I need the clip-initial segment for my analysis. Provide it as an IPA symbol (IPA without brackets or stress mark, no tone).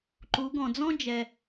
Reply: ǃ